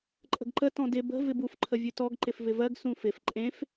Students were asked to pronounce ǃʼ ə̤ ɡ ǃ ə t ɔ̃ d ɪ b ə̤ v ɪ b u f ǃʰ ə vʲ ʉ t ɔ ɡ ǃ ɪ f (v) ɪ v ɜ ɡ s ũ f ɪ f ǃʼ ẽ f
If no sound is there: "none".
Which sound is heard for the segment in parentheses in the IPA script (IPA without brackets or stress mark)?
v